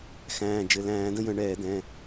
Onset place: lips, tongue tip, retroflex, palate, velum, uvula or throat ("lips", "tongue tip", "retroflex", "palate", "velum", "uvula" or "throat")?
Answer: velum